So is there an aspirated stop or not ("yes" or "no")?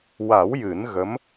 no